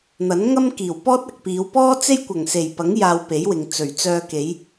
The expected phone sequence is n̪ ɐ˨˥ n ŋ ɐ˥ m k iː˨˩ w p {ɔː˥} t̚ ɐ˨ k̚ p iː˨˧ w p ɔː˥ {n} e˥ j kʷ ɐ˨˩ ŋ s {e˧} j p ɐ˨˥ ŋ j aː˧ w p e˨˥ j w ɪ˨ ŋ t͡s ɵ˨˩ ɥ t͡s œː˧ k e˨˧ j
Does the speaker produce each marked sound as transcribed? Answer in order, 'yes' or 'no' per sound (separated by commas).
yes, no, no